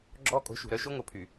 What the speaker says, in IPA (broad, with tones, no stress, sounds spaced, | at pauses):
ɡ͡ǁ ɔː˦ kʼ o̤˨˦ ʃ ṳ˨ ɾ œ˦ ʃ o˦ ŋ o˨ pʰ y˨